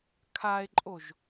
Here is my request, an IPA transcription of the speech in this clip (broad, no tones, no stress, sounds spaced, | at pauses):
kʰ a e̯ ǃʼ o ʒ